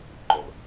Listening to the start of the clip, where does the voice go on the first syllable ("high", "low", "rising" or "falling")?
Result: low